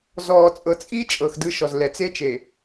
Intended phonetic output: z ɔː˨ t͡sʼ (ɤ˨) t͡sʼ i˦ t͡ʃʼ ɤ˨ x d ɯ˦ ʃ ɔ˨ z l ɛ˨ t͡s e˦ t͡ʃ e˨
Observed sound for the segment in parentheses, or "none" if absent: ɤ˨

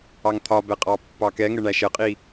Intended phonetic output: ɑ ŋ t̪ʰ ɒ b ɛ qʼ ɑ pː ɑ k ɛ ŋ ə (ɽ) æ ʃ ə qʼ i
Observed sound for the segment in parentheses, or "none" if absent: ɳ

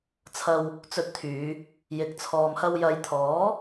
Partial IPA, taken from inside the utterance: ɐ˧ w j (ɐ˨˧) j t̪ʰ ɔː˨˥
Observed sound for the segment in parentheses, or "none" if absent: ɐ˨˧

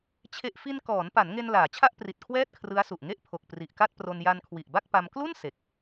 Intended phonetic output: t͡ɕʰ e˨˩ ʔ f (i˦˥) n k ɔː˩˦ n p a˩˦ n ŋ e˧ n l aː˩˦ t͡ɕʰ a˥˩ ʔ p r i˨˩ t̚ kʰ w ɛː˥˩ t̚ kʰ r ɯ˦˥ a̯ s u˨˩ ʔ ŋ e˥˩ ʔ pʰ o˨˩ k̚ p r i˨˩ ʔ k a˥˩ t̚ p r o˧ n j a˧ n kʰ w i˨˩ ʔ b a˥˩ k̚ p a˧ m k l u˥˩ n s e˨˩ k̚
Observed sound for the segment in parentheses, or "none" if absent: i˧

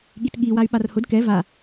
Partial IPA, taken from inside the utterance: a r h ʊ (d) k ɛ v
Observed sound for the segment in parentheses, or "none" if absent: d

